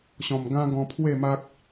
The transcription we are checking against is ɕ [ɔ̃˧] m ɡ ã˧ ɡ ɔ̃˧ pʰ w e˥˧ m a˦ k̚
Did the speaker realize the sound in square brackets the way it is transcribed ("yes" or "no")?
no